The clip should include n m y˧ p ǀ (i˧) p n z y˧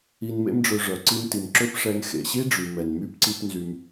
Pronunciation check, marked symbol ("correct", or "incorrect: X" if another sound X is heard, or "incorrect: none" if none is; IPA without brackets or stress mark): correct